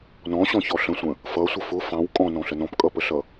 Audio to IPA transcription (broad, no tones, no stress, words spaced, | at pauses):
nɔ̃ɕɔ̃çɔ ɬə̃sʷə̃ | fʌsʷə fʊ fɑ̃w kʼɔ̃nɔ̃ɬə nɔ̃pkʼʌpəɬʌ